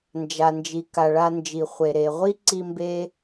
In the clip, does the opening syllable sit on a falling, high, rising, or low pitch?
low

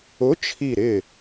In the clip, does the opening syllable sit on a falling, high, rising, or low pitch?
rising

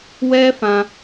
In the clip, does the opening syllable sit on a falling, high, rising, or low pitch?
high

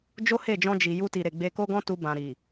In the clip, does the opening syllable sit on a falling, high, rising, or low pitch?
high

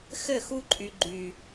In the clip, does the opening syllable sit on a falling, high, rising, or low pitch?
falling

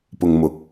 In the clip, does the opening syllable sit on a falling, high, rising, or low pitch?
low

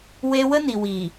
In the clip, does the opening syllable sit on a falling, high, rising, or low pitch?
high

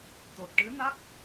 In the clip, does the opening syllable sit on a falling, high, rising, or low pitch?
low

